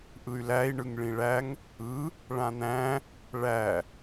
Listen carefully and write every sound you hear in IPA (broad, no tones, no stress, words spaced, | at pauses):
ʔɯy̯læi̯ ɳɯŋɭĩɭæŋ | ɯ | ɭãn̪æ̃ | ɭæ